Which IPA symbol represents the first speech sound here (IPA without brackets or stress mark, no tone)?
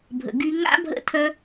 bʱ